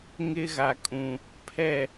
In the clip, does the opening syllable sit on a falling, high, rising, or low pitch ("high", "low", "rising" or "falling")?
high